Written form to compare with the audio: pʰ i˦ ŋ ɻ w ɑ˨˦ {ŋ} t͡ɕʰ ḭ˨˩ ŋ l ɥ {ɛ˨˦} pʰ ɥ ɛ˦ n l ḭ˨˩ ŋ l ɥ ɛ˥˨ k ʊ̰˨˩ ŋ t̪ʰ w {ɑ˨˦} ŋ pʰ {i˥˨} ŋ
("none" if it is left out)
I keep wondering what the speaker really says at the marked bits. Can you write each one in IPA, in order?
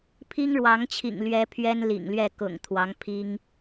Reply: ŋ, ɛ˨˦, ɑ˨˦, i˦

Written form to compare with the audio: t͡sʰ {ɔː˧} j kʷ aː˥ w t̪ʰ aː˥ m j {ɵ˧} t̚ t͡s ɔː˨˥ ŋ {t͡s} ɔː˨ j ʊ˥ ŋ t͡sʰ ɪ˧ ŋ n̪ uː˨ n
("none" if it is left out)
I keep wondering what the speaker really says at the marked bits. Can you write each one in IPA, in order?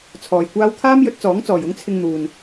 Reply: ɔː˧, ɵ˨˥, t͡s

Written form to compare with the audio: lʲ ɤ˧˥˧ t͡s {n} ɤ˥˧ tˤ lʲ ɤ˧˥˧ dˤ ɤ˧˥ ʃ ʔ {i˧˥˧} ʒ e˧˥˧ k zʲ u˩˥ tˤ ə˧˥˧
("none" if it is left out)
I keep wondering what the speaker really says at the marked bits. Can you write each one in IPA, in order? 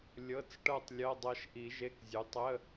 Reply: ʈ, i˨˩˦

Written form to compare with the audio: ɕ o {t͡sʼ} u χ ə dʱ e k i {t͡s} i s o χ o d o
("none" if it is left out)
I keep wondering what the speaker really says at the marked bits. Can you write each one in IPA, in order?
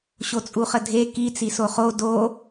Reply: t͡sʼ, t͡s

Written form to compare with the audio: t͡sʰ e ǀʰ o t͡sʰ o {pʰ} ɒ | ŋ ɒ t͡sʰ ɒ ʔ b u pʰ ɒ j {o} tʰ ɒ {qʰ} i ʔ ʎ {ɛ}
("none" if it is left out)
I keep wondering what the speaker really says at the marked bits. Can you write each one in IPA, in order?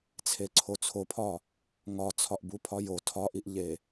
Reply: pʰ, o, ʔ, e

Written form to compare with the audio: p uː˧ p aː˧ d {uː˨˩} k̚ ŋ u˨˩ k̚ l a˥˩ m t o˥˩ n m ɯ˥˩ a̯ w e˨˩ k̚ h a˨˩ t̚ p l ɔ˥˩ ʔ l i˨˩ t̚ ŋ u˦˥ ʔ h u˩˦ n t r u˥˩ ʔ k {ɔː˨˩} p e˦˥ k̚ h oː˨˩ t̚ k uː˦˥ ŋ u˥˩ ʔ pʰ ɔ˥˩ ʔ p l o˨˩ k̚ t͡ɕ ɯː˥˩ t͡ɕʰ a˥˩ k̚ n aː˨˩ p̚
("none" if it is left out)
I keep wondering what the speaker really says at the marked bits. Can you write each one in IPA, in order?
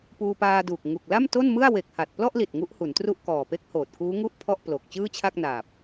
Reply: uː˨˩, ɔː˨˩

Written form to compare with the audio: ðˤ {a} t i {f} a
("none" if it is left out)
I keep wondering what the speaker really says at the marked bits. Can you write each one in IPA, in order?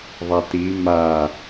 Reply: a, m

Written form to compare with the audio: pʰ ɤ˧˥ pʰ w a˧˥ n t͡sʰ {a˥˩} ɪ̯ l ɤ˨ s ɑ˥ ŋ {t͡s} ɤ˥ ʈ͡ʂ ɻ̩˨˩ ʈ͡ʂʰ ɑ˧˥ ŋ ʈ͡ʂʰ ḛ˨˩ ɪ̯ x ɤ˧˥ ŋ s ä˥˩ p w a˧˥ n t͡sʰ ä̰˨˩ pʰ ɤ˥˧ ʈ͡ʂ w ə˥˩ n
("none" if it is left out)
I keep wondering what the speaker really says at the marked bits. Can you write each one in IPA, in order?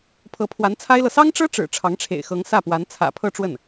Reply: a˥, ʈ͡ʂ

